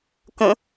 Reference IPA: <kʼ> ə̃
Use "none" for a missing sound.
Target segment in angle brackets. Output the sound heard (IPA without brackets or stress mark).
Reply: k